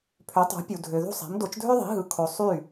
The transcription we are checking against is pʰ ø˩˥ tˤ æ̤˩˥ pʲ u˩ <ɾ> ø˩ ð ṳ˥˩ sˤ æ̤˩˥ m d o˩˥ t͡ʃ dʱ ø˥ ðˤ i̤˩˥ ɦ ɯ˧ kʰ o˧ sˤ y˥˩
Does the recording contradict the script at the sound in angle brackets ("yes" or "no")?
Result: yes